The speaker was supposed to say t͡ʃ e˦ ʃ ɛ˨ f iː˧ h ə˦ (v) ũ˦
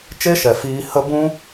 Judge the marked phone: incorrect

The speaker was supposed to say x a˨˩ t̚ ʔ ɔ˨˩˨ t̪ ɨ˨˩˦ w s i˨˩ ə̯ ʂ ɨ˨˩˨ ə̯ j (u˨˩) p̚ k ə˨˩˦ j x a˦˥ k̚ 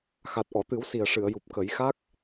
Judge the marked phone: correct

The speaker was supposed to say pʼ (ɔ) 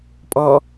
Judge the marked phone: correct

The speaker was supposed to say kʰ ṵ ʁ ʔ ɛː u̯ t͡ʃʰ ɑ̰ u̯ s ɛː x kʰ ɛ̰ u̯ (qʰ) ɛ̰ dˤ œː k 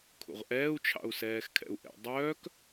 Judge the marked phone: incorrect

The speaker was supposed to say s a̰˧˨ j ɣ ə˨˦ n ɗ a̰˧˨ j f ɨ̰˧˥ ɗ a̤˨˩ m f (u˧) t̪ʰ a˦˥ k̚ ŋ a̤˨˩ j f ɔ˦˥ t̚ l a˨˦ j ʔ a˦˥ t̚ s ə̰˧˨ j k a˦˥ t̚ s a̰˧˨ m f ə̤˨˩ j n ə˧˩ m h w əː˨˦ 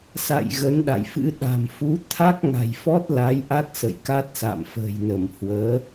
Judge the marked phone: incorrect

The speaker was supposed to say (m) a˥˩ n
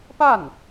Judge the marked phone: incorrect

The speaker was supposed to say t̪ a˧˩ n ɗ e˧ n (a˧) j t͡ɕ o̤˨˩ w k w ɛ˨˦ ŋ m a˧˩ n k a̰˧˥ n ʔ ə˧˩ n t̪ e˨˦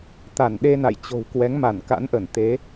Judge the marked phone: incorrect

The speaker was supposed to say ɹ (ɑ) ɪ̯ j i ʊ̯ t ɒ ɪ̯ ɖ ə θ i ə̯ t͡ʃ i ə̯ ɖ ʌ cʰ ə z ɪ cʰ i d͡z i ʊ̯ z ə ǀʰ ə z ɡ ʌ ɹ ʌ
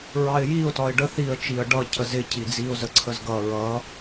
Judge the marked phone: correct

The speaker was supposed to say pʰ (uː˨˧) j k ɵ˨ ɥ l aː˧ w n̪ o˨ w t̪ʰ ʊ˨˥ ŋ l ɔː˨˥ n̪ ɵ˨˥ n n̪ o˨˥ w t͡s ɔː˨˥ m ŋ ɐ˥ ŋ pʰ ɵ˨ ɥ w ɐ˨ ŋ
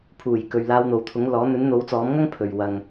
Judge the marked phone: incorrect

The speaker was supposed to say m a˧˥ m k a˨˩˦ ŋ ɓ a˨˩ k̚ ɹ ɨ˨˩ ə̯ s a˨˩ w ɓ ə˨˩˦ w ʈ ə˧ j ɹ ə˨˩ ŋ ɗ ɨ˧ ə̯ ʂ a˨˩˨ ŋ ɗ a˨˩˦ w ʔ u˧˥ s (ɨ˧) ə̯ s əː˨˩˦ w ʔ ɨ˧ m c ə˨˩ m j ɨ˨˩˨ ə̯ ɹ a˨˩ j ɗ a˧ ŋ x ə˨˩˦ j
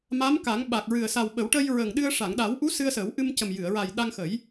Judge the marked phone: correct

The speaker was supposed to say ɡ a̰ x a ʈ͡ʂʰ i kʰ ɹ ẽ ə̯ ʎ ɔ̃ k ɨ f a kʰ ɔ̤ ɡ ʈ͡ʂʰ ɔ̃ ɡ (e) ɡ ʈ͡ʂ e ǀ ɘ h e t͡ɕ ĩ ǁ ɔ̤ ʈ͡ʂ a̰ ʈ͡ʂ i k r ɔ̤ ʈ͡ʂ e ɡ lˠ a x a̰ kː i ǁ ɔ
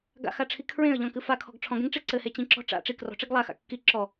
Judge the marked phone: incorrect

